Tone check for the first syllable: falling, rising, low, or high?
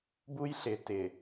high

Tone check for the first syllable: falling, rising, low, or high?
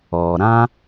low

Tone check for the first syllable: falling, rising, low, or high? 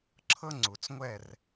high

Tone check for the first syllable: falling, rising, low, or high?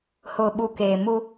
low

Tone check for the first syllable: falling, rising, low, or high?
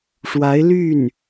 rising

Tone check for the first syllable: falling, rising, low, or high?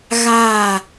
falling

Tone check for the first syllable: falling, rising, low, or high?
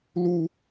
high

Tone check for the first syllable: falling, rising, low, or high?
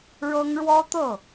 high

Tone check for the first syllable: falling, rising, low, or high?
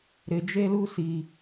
low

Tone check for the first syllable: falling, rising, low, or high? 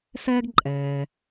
high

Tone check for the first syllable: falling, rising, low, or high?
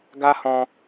high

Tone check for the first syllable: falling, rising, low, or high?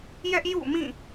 high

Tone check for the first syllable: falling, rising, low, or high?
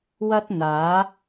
high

